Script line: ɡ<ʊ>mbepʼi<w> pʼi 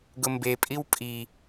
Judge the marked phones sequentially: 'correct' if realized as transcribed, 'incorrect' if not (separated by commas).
correct, correct